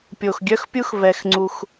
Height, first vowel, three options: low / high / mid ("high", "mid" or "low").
mid